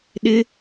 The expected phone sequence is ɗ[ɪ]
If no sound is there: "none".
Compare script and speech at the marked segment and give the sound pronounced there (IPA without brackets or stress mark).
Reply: ɪ